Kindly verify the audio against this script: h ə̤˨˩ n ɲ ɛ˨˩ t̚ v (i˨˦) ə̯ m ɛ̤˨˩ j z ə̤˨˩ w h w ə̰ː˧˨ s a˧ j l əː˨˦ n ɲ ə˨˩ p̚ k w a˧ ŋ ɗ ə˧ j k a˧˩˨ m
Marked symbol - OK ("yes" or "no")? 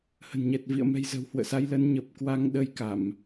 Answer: no